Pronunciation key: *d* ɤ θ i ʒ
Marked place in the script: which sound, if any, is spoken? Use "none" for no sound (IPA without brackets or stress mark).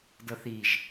d